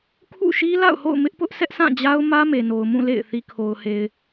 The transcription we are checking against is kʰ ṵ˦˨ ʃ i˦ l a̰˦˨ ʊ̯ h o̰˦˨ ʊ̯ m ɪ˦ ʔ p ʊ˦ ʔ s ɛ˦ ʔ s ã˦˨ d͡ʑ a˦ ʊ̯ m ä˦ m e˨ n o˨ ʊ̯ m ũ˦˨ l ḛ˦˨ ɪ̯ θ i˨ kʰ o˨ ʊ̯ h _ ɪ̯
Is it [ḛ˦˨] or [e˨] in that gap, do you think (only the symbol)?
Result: e˨